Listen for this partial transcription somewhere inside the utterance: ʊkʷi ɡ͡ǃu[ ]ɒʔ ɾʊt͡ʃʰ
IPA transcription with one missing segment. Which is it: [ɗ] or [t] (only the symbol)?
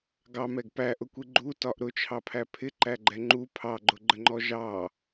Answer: t